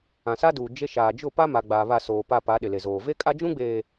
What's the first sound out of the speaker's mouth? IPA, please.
ã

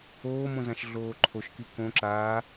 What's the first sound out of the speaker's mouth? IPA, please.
oː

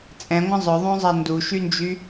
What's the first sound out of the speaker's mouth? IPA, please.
t͡sʼ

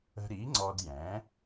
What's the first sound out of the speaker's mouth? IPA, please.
ə̤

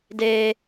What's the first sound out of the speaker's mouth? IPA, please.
d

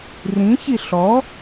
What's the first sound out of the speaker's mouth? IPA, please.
r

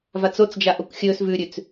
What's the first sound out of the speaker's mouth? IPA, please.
v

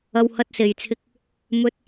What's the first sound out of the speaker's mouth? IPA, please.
ɐ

